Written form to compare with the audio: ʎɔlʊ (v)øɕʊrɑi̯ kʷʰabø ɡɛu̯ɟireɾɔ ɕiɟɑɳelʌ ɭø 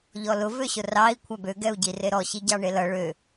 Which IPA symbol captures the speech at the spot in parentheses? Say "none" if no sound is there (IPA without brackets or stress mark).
v